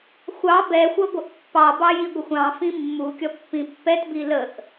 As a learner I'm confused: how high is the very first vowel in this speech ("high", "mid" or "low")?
low